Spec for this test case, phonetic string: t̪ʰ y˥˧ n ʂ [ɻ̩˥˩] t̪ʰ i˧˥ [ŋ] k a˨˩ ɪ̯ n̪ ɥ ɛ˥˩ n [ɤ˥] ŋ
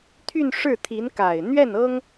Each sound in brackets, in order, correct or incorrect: correct, incorrect: n, correct

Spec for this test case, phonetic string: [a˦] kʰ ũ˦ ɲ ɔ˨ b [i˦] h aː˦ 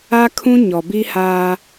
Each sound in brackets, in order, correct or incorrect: correct, correct

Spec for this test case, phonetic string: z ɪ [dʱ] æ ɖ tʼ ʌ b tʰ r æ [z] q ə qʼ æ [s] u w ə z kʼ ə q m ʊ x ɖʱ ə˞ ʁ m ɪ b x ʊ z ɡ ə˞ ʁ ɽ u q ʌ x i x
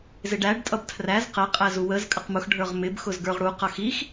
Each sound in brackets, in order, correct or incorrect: incorrect: ɖ, correct, incorrect: z

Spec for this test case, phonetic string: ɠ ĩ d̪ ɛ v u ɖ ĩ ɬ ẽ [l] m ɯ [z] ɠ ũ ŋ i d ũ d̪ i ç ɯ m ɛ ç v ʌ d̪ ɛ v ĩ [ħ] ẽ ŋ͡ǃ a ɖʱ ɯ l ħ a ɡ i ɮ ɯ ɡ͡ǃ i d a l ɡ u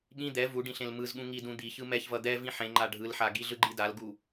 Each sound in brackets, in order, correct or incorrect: correct, correct, correct

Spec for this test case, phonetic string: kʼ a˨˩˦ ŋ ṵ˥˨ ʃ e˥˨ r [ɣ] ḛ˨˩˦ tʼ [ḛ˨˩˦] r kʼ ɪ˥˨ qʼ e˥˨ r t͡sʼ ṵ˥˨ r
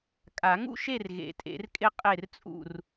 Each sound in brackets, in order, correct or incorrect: correct, correct

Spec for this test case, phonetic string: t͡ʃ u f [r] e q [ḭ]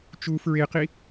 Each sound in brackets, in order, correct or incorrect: incorrect: ɹ, incorrect: i

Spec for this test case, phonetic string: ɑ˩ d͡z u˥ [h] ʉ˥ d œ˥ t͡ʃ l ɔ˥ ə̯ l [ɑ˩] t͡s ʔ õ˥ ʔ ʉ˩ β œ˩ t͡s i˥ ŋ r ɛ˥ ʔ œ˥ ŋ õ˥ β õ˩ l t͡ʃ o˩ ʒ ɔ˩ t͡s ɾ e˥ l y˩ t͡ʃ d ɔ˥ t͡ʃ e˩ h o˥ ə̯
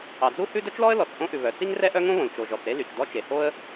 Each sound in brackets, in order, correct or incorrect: correct, incorrect: ɔ˩

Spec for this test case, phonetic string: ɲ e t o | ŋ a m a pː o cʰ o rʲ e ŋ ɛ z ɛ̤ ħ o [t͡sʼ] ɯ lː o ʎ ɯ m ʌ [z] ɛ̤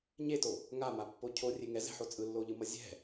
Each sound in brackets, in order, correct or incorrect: correct, incorrect: zʲ

